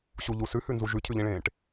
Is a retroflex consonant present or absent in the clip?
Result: present